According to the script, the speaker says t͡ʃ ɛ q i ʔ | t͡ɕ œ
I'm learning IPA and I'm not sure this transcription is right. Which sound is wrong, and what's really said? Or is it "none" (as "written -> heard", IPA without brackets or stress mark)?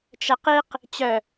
ʔ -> q